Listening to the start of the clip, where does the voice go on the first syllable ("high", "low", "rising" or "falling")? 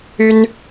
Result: high